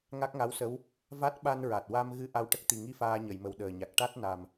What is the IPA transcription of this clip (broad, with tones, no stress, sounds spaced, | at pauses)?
ŋ a˦˥ k̚ ŋ a˧˥ w s ə˧˥ w | v a˦˥ t̚ ɓ a˧ n ɹ a˨˩ t̚ w a˧ m ɣ ɨ˧ ʔ a˧ w ʈ ə˦˥ k̚ t̪ i˨˩ ŋ i˧ f aː˧ ɲ ə˨˩˨ j m ə˨˩ w ɗ əː˨˩ ɲ a˨˩ k̚ ʈ a˦˥ t̚ n a˨˩ m